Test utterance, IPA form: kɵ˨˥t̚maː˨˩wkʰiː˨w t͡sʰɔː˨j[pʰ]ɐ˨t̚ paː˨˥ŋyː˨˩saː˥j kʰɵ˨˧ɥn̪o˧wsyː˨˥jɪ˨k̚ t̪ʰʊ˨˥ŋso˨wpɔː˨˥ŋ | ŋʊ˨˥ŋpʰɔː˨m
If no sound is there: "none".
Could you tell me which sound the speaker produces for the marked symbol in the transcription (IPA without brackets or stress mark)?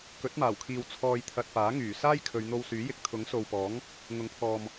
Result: t̪ʰ